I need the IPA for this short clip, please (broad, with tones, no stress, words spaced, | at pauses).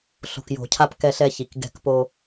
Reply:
ɬo̤˨kjo̤˨cʰa˧p kɛ˧ɬɛ˧çi˨k ɡɛ̤˧kpo˧